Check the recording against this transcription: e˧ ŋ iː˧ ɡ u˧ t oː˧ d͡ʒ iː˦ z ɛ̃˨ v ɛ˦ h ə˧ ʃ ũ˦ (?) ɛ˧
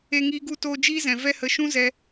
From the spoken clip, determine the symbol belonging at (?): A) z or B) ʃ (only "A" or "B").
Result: A